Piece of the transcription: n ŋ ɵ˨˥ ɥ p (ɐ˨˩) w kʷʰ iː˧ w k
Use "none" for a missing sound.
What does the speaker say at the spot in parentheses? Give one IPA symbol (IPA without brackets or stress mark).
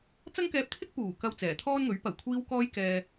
ɐ˨˩